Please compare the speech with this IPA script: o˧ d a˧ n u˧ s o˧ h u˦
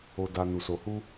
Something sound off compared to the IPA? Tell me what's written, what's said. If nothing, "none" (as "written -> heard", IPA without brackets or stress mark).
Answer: none